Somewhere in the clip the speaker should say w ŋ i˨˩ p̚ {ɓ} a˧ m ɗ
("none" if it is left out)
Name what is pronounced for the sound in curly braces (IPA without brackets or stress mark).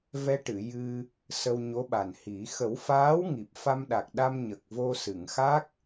f